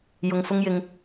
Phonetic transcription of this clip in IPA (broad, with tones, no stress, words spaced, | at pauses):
jʊ˧ŋfʊ˥ŋjɪ˧ŋ